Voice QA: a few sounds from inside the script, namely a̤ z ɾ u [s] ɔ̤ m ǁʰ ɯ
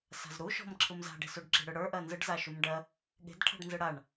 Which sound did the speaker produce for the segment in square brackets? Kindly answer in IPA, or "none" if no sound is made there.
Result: ʃ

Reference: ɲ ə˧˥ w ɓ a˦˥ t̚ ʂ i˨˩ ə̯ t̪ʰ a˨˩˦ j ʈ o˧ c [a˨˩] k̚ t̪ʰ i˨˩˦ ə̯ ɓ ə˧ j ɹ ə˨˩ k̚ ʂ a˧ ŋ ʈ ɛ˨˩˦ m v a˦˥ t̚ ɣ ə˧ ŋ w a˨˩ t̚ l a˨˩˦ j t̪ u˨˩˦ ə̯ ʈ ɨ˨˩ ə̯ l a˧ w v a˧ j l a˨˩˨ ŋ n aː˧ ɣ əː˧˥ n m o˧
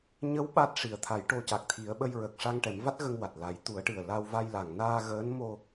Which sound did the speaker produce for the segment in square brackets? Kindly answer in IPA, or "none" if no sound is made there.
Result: a˨˩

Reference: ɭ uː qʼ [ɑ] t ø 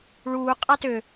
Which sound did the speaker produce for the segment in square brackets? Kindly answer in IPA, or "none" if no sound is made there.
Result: ɑ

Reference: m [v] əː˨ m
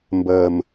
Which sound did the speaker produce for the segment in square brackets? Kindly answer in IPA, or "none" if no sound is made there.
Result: b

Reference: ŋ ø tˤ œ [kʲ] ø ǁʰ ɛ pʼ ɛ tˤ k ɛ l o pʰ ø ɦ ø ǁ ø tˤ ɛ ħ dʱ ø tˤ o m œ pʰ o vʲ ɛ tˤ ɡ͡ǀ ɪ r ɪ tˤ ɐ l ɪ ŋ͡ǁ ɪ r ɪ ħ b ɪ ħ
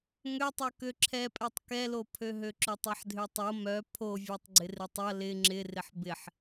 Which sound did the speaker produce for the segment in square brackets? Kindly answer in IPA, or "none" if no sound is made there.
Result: k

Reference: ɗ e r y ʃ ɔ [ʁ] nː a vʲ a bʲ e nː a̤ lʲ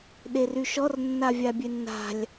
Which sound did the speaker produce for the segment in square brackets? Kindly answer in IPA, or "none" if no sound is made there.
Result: r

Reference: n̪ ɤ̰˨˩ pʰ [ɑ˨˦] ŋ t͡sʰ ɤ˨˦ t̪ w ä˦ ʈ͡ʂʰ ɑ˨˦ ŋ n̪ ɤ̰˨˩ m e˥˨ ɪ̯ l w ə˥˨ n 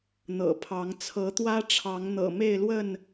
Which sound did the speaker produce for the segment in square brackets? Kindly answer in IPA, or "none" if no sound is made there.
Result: ɑ˨˦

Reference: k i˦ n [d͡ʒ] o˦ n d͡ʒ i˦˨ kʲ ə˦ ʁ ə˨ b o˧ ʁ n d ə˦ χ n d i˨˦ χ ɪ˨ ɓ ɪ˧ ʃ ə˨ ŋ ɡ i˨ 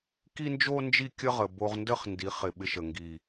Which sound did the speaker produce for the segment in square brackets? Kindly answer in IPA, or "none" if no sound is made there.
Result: d͡ʒ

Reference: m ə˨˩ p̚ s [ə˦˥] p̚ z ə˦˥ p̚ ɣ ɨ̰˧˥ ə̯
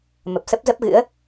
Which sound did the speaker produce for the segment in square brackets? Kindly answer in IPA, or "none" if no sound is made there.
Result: ə˦˥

